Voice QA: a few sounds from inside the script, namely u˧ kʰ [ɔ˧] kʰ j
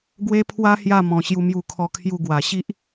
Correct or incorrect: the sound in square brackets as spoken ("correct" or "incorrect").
correct